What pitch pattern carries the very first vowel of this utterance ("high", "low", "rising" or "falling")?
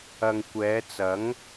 low